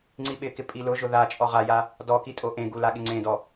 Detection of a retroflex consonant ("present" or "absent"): absent